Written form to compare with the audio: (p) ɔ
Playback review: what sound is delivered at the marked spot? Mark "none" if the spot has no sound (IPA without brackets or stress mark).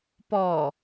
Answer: p